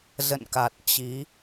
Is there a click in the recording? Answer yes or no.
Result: no